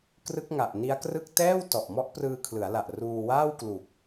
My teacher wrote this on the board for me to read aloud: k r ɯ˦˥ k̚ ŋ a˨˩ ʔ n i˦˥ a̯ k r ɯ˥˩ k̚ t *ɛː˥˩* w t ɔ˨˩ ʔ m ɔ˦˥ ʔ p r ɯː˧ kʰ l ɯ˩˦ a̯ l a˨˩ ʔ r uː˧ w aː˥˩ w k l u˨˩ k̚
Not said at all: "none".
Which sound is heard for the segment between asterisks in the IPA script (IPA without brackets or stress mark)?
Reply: ɛː˥˩